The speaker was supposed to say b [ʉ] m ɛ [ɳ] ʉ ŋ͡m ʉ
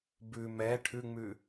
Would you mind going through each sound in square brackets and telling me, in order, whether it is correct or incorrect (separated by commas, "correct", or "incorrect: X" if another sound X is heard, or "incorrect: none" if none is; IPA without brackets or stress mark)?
correct, incorrect: ʈʰ